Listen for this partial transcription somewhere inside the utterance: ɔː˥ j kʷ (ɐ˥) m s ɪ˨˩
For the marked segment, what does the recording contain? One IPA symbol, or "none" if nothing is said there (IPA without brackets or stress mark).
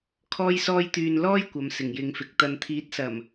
ɐ˨˧